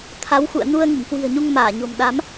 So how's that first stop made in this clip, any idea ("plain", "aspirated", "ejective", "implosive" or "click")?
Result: aspirated